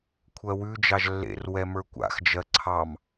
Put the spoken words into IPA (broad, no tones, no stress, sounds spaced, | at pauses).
kʷʰ ɜ w ʉ d͡ʒ ɑ ʒ lː ḛ r w ɛ m ə˞ kʷ a̰ x d͡ʒ ɜ ǀʰ ɑ m